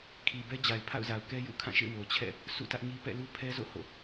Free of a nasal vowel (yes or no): no